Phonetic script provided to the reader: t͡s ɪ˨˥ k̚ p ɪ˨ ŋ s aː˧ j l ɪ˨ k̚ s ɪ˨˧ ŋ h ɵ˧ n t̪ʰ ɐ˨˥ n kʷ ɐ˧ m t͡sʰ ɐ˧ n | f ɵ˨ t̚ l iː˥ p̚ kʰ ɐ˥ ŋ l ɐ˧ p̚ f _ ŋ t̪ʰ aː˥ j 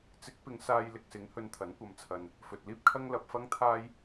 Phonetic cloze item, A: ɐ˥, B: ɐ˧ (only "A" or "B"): A